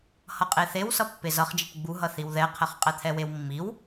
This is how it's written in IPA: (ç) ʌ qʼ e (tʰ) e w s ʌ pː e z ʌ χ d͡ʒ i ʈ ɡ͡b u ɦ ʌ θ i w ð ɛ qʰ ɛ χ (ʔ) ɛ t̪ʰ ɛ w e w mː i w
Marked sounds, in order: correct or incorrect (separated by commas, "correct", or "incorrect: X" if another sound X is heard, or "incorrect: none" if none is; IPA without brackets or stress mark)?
incorrect: h, incorrect: θ, incorrect: qʼ